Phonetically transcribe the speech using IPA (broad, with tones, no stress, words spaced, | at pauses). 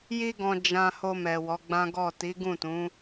ji˧ɡɔ̃˨ d͡ʒã˨ho˨ mɛ˨wɔ˨˦ɡ͡bã˦ɡɔ˦˨ ti˨˦ɡũ˦˨tũ˨˦